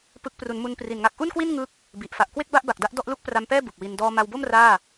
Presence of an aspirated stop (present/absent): absent